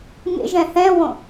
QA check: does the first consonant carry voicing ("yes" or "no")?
yes